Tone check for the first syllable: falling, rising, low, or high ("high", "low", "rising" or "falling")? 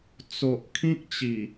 low